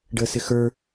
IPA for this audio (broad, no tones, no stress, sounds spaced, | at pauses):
ɖ ə s ɪ x ə˞